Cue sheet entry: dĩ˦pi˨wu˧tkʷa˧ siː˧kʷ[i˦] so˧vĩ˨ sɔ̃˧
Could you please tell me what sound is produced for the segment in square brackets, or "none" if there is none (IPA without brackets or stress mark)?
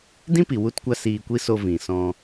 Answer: i˦